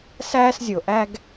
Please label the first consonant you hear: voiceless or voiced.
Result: voiceless